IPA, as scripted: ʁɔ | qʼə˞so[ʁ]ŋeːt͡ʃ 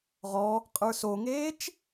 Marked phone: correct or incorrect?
incorrect: none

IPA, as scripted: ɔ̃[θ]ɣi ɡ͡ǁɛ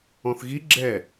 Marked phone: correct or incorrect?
correct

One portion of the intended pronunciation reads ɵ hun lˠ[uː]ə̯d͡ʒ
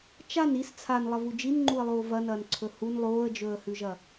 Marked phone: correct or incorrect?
incorrect: oː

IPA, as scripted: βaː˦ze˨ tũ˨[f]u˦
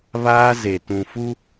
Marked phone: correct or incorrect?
correct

